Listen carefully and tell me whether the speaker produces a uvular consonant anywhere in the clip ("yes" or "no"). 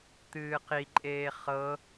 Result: yes